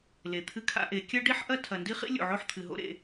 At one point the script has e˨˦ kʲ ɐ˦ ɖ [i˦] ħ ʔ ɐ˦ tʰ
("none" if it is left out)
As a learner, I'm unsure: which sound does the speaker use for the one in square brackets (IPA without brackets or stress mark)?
i˦